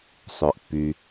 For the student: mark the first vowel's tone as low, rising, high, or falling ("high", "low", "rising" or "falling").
low